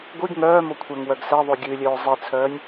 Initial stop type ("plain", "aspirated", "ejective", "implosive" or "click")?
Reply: plain